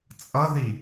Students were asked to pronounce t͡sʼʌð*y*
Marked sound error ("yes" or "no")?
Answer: yes